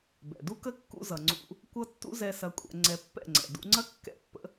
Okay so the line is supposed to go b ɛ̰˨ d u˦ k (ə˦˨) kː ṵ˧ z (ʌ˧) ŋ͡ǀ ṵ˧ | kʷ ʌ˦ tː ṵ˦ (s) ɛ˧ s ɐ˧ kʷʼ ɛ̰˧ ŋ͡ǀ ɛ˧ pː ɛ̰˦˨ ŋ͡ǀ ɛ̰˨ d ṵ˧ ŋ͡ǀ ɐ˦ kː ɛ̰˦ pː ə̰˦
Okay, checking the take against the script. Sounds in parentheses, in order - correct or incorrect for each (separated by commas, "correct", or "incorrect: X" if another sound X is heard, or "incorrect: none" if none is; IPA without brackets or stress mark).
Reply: incorrect: ə˦, incorrect: ʌ˨, incorrect: z